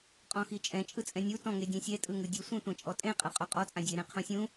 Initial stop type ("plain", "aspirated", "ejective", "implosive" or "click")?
ejective